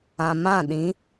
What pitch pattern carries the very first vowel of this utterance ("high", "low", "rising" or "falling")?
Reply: low